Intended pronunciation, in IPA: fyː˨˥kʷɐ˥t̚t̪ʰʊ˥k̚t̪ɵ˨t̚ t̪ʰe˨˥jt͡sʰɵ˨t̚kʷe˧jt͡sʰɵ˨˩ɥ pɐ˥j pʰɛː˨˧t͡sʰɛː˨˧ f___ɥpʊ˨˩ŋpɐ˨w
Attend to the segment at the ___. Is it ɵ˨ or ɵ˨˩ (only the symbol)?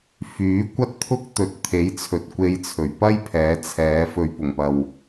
ɵ˨